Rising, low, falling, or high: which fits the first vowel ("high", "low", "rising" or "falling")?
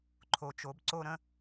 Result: low